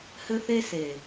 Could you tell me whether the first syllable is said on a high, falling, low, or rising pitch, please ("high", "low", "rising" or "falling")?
high